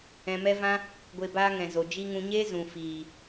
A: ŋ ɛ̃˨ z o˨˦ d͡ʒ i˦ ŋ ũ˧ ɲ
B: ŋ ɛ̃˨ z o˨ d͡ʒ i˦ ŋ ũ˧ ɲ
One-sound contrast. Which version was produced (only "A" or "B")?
B